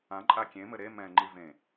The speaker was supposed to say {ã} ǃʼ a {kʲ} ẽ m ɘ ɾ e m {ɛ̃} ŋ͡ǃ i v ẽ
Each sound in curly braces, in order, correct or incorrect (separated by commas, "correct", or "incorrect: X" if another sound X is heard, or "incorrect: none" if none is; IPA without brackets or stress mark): correct, correct, correct